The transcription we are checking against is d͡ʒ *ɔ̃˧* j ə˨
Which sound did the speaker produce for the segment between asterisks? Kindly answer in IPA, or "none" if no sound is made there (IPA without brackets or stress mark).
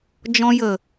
ɔ̃˧